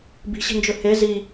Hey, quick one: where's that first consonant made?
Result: lips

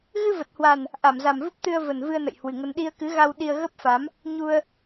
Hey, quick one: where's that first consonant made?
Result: velum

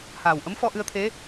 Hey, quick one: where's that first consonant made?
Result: throat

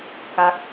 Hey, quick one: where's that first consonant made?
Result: velum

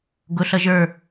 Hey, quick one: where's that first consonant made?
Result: velum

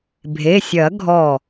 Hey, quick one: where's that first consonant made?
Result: lips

